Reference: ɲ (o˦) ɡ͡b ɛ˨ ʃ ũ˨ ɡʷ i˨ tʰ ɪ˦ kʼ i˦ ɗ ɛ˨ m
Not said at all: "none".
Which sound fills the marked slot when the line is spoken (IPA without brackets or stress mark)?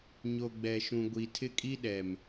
o˨